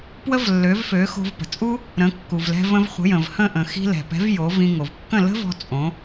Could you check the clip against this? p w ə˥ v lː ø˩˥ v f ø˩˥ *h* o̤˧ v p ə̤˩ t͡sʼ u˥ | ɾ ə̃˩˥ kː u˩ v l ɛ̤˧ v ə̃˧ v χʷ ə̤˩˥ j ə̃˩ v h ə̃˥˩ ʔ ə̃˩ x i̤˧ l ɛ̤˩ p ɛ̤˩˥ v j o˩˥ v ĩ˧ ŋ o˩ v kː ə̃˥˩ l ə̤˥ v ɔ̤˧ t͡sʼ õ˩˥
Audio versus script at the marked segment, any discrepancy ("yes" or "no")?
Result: yes